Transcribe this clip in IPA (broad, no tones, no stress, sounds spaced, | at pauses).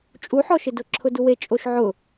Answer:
t͡ʃʼ u ħ ɔ ʃ ɪ d ʊ ǁʰ ʊ d u w e t͡ʃʼ o ʃ ʕ ʊ